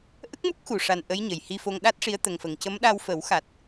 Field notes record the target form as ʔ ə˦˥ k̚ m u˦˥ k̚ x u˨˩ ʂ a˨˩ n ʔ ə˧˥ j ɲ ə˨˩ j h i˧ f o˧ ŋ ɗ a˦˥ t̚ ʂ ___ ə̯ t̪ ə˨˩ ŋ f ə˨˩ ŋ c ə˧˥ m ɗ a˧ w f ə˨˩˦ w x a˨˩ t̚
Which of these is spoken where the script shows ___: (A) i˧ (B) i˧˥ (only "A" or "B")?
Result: B